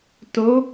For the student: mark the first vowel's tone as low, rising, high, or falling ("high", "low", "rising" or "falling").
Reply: rising